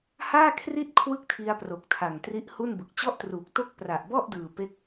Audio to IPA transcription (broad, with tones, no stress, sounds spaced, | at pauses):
h aː˥˩ kʰ r i˥˩ t̚ kʰ w ɯ˥˩ k̚ tʰ i˧ a̯ p r o˨˩ k̚ tʰ a˨˩ ŋ t r i˦˥ ʔ h u˥˩ n b ɯ˨˩ k̚ t͡ɕ ɔ˥˩ ʔ t r uː˨˩ k̚ t o˥˩ k̚ p r a˨˩ ʔ b ɔ˥˩ ʔ d ɯː˨˩ p e˥˩ k̚